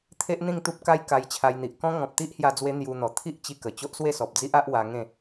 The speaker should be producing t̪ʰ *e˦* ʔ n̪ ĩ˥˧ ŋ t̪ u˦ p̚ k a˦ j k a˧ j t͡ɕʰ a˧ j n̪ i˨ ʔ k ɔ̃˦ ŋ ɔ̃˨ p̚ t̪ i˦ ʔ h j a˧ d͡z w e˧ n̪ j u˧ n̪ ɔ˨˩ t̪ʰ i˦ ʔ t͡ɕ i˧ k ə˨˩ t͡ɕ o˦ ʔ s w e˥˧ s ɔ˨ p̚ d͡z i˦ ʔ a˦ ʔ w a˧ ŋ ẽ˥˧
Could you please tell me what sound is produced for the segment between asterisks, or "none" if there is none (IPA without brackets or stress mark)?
e˦